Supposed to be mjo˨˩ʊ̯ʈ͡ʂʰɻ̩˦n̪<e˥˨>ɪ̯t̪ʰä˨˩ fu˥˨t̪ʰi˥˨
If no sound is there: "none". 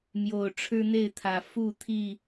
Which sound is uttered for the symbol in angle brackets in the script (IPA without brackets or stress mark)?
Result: e˥˨